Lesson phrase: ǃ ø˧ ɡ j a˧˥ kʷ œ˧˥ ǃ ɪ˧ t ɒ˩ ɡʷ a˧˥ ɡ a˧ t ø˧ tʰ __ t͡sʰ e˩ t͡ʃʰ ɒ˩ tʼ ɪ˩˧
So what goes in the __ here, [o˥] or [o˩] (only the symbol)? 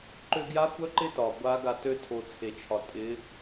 o˩